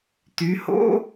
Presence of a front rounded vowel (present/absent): present